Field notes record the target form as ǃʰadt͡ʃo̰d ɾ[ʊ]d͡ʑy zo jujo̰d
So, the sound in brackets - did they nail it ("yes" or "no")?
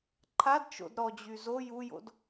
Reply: no